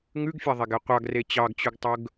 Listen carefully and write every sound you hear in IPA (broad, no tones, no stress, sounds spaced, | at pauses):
ŋ ʉ ɡ fʲ ɑ ðˤ e ɡ ɛ qʷ ɑ ɡ r e t͡ɕ ɑ ɡ t͡ɕ ʉ ɡ tˤ ɵ ɡ